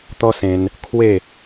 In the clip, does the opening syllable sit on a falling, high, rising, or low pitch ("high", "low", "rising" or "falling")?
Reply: high